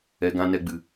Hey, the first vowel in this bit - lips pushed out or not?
no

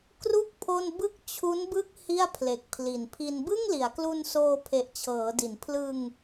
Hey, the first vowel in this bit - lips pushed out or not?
yes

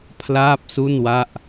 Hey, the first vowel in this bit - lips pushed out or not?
no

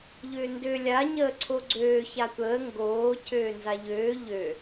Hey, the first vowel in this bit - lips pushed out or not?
yes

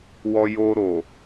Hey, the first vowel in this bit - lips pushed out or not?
yes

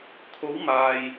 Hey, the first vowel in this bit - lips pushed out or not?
yes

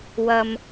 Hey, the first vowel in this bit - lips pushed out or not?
no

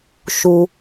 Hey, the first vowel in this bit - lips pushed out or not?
yes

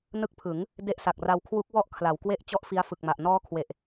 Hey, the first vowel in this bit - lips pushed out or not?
no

